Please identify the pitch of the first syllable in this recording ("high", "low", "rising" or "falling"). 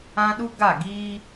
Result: high